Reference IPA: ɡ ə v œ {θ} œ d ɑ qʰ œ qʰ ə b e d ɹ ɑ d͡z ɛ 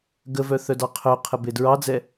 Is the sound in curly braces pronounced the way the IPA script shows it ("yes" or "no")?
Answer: yes